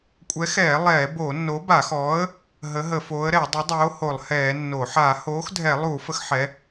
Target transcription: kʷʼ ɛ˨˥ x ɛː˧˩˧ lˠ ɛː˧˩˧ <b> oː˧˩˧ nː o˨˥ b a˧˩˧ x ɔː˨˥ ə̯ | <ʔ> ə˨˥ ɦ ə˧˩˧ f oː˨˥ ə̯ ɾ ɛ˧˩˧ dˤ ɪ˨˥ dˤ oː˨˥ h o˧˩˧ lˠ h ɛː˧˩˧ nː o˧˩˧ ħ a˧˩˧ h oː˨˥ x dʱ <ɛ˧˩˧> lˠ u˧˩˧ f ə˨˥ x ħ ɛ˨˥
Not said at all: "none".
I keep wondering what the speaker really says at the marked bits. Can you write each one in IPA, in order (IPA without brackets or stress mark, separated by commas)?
b, ɦ, ɛ˧˩˧